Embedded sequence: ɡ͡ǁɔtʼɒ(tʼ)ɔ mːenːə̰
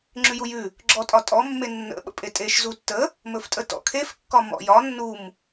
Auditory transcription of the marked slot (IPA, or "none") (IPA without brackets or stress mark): tʼ